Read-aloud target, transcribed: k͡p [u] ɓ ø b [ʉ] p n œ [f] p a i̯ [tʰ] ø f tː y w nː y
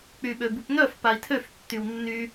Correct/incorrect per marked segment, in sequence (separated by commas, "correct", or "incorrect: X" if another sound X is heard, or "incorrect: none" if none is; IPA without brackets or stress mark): incorrect: y, incorrect: u, correct, correct